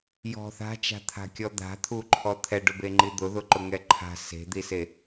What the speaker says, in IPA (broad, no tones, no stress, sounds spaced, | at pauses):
j ɔ̤ θ a̤ t͡ʃ a̤ t̪ʰ a̤ kʲ ɔ d̪ a̤ t̪ʰ u ǃʰ ɔ t̪ʰ ɛ ɖ ʊ b e ŋ͡ǃ i d̪ ʊ ð ʊ ǃ ʊ ŋ ɛ ǃʰ a̤ s e̤ d̪ i s e